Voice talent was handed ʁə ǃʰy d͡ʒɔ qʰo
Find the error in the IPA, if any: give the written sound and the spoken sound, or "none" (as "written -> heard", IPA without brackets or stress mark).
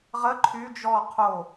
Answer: none